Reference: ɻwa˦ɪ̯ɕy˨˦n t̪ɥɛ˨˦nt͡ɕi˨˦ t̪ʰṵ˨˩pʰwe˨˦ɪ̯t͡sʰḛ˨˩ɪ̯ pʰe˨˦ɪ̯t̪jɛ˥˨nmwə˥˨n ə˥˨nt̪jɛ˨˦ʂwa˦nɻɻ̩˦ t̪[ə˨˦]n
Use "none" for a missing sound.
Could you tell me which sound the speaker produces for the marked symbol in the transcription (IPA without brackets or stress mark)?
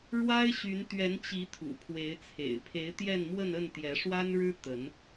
ə˨˦